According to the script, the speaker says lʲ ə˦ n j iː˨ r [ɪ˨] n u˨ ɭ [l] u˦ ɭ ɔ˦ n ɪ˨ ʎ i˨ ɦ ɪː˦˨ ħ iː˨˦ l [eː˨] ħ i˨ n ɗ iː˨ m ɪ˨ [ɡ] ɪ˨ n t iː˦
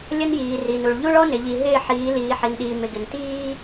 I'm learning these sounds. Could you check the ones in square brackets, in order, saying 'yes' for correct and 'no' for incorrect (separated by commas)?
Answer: no, no, no, yes